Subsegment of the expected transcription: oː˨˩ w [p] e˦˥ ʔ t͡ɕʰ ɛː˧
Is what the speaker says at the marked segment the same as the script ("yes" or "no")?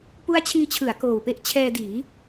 yes